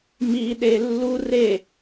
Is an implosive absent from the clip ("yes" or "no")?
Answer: no